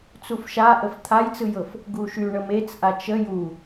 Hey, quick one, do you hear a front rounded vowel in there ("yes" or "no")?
yes